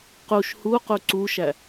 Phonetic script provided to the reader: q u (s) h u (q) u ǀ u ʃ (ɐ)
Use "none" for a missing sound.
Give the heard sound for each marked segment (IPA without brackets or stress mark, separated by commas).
ʃ, q, æ